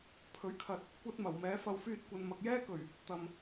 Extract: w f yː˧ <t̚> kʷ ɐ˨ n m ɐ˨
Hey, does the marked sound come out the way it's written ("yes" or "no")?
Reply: yes